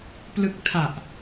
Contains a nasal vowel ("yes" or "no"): no